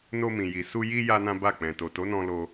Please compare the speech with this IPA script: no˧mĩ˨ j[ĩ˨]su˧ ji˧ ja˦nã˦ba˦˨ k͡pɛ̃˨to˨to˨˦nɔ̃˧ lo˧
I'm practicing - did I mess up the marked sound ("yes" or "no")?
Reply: yes